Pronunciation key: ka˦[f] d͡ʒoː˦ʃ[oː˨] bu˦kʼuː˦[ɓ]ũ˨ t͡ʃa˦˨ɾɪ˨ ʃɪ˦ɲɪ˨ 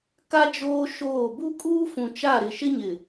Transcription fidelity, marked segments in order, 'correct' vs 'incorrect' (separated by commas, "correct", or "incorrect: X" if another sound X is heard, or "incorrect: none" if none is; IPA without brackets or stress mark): incorrect: none, incorrect: oː˦˨, incorrect: f